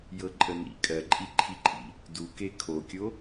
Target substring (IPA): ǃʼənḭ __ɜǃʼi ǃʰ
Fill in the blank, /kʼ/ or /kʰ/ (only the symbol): kʼ